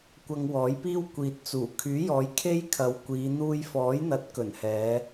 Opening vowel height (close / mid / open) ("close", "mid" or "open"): open